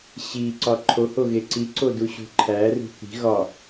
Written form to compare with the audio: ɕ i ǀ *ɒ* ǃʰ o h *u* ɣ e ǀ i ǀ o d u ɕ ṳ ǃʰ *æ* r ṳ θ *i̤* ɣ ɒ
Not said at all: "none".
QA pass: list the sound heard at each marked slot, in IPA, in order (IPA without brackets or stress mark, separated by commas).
ɒ, o, æ, i̤